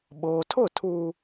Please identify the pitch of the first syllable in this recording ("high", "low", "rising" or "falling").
low